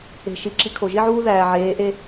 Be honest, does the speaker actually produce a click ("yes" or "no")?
yes